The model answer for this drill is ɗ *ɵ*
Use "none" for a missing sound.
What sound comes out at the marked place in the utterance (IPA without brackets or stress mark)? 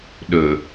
ɵ